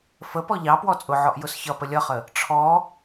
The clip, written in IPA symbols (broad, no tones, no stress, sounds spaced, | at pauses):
f ə p ɔ ʎ ɑ p w ɔ t͡sʼ ʊ ʕ ɔ ʔ j ʊ s ç ʌ p ə lʲ ʌ χ ə | ʈ͡ʂʰ ɔ